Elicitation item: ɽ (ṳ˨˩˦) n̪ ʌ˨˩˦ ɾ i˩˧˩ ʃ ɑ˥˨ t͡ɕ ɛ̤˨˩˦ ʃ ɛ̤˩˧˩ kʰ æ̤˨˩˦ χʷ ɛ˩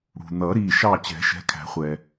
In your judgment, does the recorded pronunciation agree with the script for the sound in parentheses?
no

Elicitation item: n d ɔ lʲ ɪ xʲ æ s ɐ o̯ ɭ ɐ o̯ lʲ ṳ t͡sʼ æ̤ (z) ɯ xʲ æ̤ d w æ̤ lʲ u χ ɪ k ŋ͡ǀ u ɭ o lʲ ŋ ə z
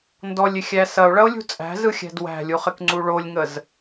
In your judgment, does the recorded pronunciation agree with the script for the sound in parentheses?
yes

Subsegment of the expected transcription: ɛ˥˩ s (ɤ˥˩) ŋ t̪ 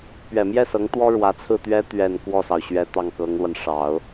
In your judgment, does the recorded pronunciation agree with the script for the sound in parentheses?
no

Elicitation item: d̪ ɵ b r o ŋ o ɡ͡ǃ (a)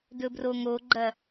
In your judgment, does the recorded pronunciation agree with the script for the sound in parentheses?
no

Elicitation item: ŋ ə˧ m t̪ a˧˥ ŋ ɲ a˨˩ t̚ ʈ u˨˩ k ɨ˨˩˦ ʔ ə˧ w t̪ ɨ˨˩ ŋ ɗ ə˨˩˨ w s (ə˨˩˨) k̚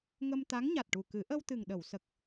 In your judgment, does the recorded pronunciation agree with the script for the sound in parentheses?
no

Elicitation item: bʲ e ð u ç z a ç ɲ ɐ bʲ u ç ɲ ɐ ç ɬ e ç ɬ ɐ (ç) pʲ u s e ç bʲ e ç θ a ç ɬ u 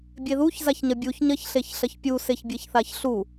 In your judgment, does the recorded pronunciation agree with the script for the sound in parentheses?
yes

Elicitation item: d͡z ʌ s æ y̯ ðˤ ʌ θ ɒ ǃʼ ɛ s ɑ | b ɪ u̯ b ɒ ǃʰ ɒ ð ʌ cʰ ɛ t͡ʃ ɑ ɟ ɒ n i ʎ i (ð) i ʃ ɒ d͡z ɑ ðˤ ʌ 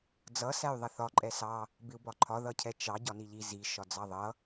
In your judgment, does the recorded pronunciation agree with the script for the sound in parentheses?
no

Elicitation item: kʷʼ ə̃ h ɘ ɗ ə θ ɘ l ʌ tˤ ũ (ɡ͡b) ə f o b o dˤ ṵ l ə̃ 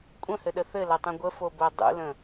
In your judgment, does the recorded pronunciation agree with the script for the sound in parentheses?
no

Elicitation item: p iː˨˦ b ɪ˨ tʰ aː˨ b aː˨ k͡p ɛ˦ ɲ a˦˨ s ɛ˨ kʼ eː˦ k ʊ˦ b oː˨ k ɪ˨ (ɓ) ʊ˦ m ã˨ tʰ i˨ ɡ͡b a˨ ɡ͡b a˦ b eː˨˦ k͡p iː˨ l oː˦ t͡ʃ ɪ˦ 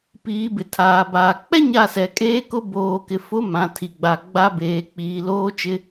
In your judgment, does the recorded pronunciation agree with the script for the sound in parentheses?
no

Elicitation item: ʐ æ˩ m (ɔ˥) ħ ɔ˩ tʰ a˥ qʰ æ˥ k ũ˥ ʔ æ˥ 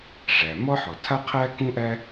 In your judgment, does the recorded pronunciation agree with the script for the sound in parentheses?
yes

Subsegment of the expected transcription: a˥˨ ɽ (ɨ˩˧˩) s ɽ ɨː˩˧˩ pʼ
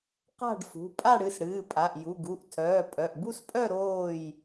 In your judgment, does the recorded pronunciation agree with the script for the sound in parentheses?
yes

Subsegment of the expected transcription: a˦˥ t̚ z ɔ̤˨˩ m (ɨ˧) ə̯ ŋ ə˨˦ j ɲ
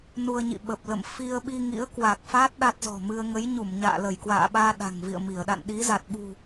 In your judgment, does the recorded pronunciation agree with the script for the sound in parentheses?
yes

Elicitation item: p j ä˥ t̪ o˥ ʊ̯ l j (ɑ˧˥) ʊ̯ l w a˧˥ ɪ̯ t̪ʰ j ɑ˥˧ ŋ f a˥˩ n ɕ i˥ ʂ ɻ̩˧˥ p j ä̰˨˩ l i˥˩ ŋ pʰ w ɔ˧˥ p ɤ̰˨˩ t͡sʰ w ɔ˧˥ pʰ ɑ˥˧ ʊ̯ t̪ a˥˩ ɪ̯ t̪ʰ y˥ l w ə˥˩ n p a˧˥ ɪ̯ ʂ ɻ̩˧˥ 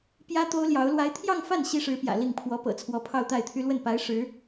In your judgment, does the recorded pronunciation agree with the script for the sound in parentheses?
yes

